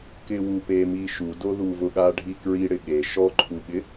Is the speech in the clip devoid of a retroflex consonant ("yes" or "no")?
no